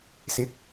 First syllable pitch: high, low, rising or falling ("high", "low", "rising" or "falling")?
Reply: rising